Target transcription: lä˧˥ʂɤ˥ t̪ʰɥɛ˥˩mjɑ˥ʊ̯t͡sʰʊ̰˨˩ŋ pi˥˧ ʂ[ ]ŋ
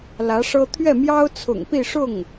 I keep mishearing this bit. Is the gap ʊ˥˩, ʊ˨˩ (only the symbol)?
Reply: ʊ˥˩